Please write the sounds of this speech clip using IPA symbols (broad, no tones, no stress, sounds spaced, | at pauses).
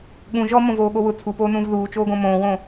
ɠ ũ ʒ ɔ m õ v oː ɠ o w ʊ t͡sʰ u p oː n ũː v ð uː t͡ʃ oː ɡ õ m õː w õ